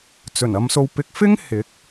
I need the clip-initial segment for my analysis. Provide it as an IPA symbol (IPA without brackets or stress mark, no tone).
t͡s